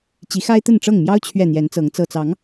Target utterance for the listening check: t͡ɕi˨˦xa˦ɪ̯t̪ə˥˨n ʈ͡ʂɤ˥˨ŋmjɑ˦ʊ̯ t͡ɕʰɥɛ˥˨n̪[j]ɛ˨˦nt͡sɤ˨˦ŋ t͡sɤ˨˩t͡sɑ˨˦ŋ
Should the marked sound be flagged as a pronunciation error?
no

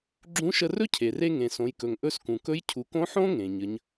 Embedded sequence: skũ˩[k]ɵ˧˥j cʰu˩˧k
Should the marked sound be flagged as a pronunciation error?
no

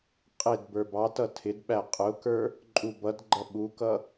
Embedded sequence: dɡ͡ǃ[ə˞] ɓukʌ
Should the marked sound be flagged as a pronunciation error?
yes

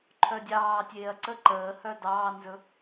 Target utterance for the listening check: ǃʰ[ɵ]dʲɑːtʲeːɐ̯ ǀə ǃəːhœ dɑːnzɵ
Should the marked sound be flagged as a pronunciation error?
yes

